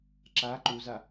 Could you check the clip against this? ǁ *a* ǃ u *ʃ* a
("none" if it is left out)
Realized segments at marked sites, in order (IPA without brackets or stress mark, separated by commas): a, z